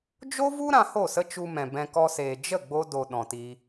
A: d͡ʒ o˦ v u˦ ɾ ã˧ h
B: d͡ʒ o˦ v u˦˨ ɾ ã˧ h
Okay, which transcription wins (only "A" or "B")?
A